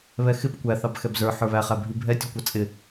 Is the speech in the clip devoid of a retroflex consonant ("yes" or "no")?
yes